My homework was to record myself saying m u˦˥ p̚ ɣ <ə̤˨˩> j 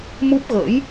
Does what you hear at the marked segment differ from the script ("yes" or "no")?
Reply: yes